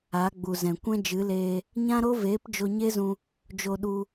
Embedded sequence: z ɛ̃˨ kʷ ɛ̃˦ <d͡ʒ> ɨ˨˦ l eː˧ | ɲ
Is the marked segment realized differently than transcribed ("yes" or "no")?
no